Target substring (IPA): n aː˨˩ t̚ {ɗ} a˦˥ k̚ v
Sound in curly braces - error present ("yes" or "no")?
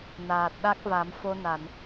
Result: no